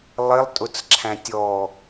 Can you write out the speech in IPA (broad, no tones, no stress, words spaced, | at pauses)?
lˠɪlˠtʼʊt͡sǁʰæ̃ tʲɔ